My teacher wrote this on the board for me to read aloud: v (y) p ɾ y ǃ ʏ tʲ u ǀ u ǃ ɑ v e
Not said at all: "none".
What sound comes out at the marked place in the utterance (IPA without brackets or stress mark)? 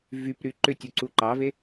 y